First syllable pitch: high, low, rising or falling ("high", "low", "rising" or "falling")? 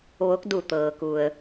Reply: rising